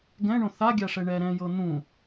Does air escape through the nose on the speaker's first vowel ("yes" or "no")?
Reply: yes